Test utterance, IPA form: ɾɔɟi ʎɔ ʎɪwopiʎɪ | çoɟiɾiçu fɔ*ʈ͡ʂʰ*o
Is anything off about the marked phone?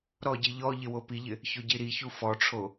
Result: no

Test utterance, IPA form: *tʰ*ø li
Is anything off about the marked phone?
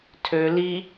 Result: no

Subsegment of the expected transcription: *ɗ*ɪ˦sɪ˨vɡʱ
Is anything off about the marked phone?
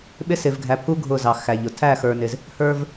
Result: yes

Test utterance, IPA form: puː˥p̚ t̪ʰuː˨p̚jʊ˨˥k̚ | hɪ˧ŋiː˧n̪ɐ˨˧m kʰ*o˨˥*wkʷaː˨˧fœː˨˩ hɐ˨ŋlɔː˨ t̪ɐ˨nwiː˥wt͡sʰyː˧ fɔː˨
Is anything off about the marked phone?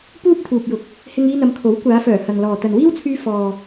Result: no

